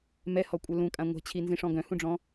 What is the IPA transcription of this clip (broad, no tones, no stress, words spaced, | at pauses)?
mɛhɔkʷʼœ lũkʼã ŋʷɛ̤t͡ɕʰinzĩʂɔ̃ ɡœ̃hũɖ͡ʐɔ̃